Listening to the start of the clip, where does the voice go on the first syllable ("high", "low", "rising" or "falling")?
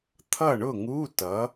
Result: falling